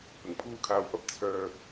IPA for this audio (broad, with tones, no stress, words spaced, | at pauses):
pɪ˨˩ŋpʰuː˥kʰaː˧wpɐ˥p̚ t͡sʰœː˧k̚